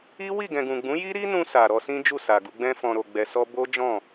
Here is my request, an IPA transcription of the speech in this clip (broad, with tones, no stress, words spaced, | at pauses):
i˦wi˦˨ ɡɛ̃˨ɡũ˨ɡ͡bũ˨˦ ji˦ɾi˦nũ˧ sa˨ɾɔ˧ sĩ˦d͡ʒu˦˨sa˨ɡu˧ ɡ͡bɛ̃˧fɔ̃˨ɾo˨ ɡ͡bɛ˨sɔ˧bo˦ d͡ʒɔ̃˦˨